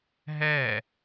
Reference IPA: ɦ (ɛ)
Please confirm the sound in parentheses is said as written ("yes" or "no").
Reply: yes